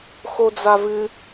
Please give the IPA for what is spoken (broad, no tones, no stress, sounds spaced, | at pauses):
x o d͡z a v ɨ